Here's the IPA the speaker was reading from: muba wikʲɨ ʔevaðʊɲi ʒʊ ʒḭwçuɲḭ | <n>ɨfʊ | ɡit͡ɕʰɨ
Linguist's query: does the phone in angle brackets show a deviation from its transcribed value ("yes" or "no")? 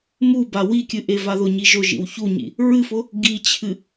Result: yes